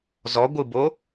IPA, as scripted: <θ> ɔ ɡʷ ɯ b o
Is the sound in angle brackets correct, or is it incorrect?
incorrect